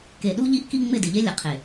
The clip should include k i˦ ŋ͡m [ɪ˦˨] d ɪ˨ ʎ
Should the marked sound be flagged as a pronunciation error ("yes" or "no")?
no